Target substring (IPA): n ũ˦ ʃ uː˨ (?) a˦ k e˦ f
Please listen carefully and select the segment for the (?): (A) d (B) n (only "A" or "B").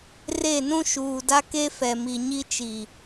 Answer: A